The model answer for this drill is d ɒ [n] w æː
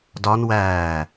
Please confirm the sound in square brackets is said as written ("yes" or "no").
yes